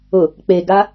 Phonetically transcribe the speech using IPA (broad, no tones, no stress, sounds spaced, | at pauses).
ʊ | k͡p e ɡ a